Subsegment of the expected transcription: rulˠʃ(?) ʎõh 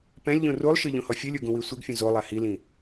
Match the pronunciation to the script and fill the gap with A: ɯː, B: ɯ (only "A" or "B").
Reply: B